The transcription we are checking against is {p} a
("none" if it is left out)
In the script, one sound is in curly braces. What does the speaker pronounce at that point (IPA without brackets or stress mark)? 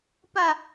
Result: p